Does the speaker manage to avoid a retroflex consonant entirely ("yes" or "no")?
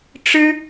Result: no